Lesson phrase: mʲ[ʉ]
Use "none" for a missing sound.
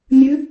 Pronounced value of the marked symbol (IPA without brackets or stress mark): ʉ